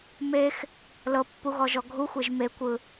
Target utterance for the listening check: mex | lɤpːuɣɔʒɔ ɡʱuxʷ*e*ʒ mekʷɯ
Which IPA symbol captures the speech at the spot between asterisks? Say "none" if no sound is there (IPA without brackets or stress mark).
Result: e